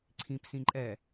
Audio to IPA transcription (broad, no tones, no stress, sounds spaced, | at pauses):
ǀʰ ĩ p s ĩ ǃʼ ɛ